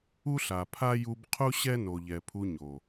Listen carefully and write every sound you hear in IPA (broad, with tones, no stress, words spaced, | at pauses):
u˦ɬa˨pʰa˦ ju˧bqʰu˦ ɕɛ˦no˨ʎɛ˨ pʰu˧ɲo˨